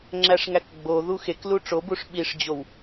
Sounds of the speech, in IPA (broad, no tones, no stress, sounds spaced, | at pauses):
ŋ͡ǁ æ ʂ ŋ æ k ɡ͡b o ð u x e k l u ʈ͡ʂ o b u ʂ ɓ i ʂ d͡ʑ o w